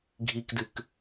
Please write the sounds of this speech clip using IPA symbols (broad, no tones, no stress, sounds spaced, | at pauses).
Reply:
ɡʱ i k d ɨ k